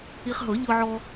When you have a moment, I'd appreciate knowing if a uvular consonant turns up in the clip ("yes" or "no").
yes